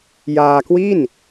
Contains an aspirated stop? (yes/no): no